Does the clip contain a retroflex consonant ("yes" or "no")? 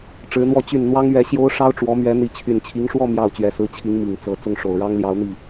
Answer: yes